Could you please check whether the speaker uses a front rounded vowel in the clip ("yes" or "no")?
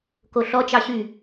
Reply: yes